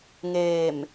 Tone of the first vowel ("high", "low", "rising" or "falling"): low